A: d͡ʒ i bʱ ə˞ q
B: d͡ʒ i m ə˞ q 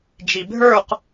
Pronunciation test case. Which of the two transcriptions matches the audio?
A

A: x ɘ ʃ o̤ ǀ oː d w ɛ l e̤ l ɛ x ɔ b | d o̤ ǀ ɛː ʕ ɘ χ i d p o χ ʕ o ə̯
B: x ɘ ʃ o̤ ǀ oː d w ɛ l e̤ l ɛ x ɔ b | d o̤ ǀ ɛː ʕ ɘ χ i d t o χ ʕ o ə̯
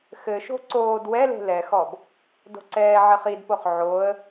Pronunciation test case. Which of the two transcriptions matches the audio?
A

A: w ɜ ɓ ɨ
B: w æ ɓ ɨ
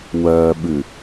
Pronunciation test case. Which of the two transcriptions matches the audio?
A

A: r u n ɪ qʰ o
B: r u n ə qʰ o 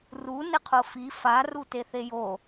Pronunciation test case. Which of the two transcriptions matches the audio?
A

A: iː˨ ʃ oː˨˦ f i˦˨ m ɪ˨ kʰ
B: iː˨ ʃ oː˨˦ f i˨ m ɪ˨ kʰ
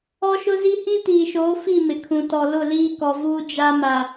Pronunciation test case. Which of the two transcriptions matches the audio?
A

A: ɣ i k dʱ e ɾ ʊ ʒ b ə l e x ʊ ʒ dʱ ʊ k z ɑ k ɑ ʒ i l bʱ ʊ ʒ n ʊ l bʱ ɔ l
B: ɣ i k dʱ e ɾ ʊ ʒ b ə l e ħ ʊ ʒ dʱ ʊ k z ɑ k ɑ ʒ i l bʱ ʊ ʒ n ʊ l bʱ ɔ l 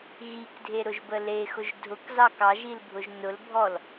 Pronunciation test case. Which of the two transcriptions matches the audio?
A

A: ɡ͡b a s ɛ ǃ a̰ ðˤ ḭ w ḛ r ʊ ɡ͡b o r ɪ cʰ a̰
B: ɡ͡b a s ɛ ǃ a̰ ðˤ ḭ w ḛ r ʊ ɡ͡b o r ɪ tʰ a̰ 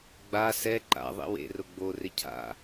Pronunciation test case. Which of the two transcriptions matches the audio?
A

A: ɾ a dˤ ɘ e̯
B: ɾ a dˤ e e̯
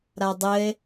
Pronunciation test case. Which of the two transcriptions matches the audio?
A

